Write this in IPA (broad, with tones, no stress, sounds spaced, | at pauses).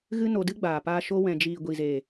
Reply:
ɣ ɨ˦ n o˧ d ɨ˦ ɡ͡b aː˨ p aː˧ ʃ o˧ w ɛ̃˨ d͡ʒ iː˨ ɡʷ i˨ z eː˨